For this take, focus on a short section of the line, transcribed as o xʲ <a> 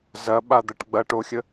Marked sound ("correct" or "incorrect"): incorrect